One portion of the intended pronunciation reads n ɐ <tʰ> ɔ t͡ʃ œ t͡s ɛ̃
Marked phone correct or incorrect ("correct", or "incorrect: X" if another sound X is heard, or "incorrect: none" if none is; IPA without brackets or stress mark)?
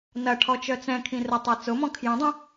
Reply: incorrect: ʈʰ